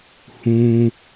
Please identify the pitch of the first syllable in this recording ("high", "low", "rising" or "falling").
high